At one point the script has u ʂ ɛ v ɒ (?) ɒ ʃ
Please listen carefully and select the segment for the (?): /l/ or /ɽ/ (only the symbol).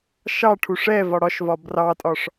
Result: ɽ